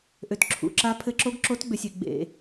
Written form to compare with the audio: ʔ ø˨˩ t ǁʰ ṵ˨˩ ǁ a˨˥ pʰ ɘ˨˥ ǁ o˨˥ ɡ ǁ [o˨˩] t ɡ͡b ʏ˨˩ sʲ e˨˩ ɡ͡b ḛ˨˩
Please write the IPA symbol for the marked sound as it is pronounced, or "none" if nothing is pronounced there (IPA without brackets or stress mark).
o˨˥